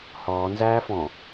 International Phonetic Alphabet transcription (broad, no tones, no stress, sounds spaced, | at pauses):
h ɔː n z æː f ɔ̃